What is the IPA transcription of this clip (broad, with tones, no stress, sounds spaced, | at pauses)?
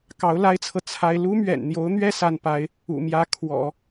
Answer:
k ɑ˧˥ ʊ̯ l a˥ ɪ̯ t͡sʰ ɤ˨ t͡sʰ a˥ ɪ̯ l u˥ m ɥ ɛ̰˨˩ n n̪ j o˧˥ ʊ̯ n̪ ɥ ɛ˥ s a˥˩ n p a˥ ɪ̯ | ṵ˨˩ m j ä˥ kʰ w ɔ̰˨˩˦